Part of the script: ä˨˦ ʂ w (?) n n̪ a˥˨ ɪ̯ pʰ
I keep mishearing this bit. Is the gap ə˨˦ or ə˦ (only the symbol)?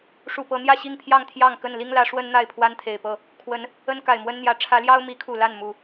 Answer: ə˦